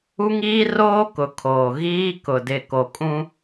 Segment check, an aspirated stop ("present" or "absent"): present